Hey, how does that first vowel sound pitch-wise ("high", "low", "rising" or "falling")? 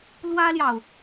high